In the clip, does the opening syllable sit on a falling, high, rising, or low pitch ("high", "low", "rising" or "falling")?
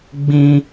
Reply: high